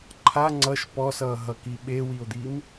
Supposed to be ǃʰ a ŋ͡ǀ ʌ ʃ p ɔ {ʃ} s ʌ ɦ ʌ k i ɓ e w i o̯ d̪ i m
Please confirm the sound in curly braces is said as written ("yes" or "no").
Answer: no